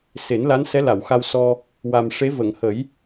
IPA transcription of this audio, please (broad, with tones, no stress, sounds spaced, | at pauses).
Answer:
s e˨˩˦ n l a˧˥ n s ɛ˧˥ l a˨˩˨ w x a˧ w s ɔ˧ | w a˨˩ m ʂ e˧˥ v ə˨˩˨ ŋ h ə˨˩˦ j